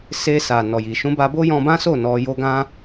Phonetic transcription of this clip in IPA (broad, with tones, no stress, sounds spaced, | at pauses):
s e˧ s a˨ n ɔ˨ j i˨ ʃ ũ˧ b a˧ b o˦ j ɔ̃˧ b ã˦ s o˦˨ n ɔ˧ j o˧ ɡ ã˦